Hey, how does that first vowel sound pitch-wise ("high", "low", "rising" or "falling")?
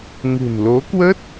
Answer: low